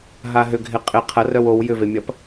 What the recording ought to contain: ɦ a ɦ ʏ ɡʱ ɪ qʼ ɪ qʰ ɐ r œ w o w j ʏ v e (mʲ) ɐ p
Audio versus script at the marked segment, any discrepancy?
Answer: no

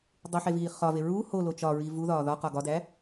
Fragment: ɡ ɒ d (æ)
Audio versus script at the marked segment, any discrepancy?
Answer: no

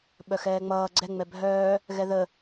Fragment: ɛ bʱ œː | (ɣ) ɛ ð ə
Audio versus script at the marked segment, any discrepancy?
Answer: no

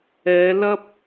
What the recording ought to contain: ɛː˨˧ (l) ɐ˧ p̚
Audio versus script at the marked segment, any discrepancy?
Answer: no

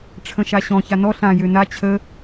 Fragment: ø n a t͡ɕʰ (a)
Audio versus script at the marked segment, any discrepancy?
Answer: yes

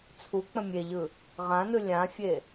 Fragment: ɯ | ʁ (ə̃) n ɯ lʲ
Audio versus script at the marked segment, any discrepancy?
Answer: yes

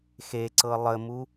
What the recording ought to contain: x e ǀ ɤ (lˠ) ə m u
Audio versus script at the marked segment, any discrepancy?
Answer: no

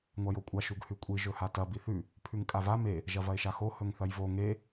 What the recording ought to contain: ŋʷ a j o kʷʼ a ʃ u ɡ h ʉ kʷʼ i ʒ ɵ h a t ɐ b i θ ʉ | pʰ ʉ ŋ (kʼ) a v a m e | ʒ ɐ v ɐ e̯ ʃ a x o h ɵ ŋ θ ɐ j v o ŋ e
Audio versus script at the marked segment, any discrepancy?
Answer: no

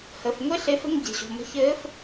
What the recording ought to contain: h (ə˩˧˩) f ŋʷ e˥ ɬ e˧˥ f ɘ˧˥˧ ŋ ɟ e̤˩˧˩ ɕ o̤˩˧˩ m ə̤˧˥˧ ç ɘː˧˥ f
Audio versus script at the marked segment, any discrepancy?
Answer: no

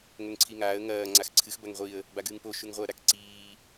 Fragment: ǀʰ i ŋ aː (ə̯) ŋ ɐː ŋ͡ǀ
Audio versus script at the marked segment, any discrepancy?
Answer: no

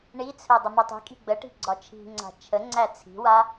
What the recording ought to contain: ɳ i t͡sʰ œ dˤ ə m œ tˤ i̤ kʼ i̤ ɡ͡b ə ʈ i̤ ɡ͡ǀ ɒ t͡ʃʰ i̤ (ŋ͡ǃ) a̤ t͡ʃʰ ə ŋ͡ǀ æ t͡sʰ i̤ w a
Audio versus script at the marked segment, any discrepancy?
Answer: yes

